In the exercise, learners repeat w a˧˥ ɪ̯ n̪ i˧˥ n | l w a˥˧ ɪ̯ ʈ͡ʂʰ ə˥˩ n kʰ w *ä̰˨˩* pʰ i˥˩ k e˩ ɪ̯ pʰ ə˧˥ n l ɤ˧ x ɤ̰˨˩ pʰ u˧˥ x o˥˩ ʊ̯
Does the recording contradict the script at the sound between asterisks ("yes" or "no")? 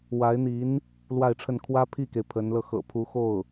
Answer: yes